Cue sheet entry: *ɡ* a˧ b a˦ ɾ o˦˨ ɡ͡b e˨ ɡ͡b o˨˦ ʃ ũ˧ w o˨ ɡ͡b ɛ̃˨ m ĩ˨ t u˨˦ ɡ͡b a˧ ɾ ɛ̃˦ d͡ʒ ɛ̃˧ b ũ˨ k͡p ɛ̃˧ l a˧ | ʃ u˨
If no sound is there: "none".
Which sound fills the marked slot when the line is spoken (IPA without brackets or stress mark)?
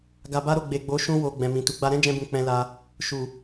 ɡ